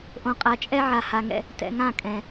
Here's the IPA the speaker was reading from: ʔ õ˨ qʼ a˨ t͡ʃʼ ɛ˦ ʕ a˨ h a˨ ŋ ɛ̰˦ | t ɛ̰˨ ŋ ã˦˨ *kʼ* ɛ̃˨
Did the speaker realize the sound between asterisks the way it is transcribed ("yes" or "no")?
yes